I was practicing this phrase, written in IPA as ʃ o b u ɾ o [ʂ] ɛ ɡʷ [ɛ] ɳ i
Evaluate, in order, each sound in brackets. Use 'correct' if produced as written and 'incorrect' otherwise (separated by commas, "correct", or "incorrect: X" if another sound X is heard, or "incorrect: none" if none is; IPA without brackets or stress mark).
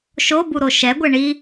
incorrect: ʃ, correct